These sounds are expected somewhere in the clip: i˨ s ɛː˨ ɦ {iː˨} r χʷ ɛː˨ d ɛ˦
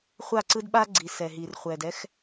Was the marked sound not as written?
no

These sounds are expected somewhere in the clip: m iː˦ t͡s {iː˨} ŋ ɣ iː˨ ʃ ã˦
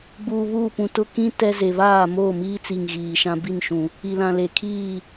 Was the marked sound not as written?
yes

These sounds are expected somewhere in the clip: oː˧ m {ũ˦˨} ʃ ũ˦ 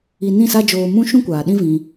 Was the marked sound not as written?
yes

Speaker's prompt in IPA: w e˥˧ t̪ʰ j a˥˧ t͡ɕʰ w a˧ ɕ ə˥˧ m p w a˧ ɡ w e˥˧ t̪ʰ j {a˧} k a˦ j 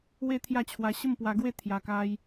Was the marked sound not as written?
no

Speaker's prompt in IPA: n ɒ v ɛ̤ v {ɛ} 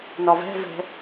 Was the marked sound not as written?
yes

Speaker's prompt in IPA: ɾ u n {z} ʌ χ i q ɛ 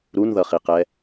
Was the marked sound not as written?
yes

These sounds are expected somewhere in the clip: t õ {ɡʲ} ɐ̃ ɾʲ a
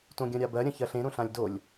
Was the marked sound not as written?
no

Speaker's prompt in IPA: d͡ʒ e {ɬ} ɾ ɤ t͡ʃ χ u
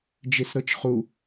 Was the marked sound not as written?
yes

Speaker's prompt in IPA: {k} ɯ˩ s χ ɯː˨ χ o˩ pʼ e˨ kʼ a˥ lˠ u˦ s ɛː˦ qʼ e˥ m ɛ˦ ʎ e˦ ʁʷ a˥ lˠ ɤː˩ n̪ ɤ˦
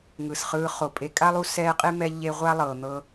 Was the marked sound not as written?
yes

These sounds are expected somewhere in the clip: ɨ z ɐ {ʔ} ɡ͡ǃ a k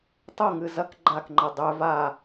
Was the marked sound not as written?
yes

